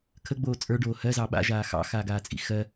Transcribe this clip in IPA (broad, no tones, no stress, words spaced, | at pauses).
kʰəɡ͡boː t͡sʼə˞ɖoː hɜzɑ ɓa̰ʒaː xɑ̰xaːɡaːt͡sʼḭ xɜ